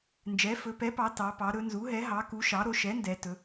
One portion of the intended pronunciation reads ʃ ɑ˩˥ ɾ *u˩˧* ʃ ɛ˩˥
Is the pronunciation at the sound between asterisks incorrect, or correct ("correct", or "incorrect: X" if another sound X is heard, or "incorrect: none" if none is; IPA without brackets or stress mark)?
incorrect: o˩˧